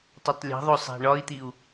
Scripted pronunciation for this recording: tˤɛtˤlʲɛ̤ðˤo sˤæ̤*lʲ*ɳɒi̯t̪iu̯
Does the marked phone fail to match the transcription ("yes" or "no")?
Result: yes